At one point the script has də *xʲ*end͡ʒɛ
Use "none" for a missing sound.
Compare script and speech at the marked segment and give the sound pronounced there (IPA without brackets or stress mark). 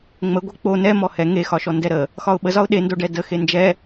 x